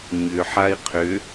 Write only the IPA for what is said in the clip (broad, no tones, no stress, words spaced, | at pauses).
ɲʏ ħai̯qʰʏ